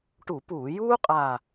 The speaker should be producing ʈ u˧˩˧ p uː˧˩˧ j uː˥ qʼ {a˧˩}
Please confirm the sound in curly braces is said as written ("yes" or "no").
yes